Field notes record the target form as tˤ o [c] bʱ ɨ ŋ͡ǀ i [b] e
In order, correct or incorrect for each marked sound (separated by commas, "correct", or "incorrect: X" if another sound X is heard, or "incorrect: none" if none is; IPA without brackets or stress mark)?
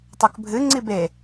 incorrect: k, correct